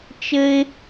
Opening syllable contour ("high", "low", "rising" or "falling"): high